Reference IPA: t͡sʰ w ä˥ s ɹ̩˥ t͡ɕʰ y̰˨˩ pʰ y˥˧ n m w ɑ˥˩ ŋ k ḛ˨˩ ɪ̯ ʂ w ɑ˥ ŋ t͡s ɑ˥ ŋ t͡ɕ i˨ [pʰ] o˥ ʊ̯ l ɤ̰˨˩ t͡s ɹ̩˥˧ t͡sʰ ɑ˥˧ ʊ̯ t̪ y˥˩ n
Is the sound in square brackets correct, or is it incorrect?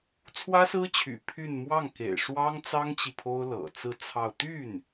correct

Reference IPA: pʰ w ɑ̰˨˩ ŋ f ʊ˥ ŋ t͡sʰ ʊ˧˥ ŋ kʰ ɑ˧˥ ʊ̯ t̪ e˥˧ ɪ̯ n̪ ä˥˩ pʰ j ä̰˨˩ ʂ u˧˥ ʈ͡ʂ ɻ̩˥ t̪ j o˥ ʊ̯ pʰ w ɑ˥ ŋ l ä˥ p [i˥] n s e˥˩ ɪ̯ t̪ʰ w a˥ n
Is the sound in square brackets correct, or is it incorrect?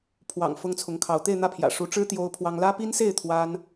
correct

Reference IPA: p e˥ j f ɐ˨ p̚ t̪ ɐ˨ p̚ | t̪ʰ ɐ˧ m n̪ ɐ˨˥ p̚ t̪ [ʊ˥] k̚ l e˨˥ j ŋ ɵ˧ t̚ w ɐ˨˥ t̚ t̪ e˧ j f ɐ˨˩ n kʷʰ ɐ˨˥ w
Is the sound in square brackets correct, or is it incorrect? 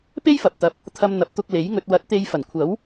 incorrect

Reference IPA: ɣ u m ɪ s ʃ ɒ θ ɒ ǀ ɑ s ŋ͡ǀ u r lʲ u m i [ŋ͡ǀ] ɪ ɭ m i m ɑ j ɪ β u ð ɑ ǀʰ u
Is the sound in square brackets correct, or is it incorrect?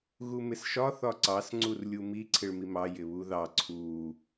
incorrect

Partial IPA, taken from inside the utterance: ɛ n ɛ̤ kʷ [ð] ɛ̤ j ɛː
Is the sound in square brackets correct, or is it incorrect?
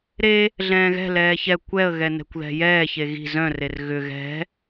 correct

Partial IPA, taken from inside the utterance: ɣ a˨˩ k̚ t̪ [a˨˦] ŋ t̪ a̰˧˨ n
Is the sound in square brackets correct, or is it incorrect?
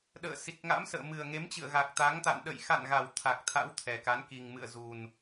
correct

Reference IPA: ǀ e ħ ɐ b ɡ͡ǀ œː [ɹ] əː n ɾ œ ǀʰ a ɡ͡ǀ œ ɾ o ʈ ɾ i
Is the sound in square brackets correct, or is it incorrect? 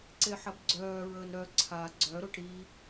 correct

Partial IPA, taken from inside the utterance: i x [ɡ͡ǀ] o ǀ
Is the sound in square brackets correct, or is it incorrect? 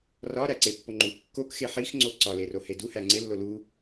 incorrect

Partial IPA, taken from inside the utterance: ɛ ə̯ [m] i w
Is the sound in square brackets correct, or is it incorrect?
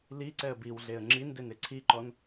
incorrect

